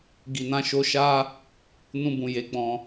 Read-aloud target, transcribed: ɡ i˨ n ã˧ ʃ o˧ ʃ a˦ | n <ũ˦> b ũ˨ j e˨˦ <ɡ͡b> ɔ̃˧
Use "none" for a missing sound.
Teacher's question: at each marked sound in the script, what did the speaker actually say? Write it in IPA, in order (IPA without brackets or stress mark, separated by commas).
ũ˧, ɡ͡b